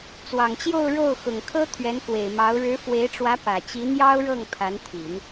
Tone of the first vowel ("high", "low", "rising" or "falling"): low